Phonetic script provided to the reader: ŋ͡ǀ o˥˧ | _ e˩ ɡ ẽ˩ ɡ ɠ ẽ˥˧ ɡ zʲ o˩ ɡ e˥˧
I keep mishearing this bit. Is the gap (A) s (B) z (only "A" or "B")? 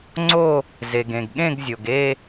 B